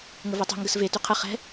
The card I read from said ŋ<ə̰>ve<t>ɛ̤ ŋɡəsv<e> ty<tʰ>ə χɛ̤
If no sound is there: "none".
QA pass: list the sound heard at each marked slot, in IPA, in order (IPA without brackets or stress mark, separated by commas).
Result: ə, tˤ, e, qʰ